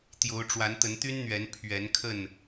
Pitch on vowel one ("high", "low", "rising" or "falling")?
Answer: rising